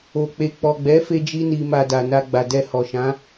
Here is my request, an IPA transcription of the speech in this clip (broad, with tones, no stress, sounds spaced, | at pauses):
o˨ k͡p e˨ k͡p ɔ˨ ɡ͡b ɛ˨˦ f e˧ d͡ʒ i˧ n i˨ m a˨ d a˨ n a˧ ɡ͡b a˨ d ɛ˧ h ɔ˨ ʃ ã˨˦